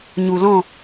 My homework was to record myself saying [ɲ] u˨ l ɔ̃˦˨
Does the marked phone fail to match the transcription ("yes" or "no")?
no